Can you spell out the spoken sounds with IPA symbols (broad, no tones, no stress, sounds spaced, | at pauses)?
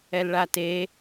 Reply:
ɛ l ɭ a t e